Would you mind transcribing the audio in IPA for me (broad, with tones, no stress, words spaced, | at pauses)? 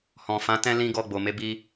hɔ̃˨fã˨˦ tɛ̃˦ lĩ˦ɡɔ˧ɡ͡bo˨ me˨˦bi˧